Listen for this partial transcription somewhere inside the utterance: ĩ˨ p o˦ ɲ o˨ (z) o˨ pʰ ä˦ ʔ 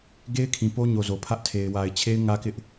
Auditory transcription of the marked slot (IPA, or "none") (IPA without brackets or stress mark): z